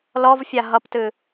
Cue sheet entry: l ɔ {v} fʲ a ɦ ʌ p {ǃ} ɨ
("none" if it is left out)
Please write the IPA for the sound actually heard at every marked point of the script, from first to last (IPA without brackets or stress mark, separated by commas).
v, t